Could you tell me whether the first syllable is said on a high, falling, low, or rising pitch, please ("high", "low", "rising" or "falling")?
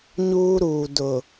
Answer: high